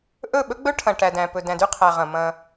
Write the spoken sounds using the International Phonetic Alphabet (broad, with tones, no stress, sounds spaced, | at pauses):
ʔ ɵ˦˨ ɓ ɵ˦ ɡ͡b ɵ˦ ʈʰ ɐ̃˨ ʈ æ˨ d æ̃˨ p ɵ˨ d æ̃˨ d y˦ qʰ æ˨ ʁ ɐ̃˨ m ɐ̃˦